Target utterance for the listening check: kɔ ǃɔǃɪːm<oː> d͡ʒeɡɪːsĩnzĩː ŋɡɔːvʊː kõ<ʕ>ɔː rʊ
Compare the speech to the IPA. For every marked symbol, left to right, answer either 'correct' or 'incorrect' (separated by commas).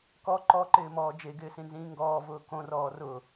incorrect, incorrect